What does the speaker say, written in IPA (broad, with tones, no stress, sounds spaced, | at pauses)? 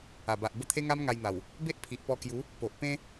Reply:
a˨˩ b a˨ ʔ b ə˥˧ t̪ʰ e˦ ŋ a˦ m ŋ a˧ j n̪ a˨˩ w | b e˦ ʔ pʰ i˨ ʔ p ɔ˧ k j u˨˦ | p o˨ ʔ p ẽ˦